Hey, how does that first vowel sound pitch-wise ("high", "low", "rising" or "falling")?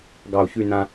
low